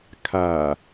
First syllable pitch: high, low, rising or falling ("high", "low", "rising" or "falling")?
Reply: low